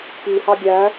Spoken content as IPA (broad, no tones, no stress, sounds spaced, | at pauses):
p i h ɑ ɡʲ æ